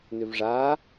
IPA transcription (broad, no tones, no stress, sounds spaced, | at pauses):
n ʏ v ʐ a